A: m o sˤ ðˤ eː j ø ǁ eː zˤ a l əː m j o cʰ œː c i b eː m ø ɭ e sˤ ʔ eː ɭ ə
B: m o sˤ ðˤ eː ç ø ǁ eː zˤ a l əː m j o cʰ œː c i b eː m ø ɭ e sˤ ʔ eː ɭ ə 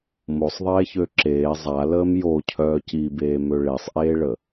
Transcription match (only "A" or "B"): B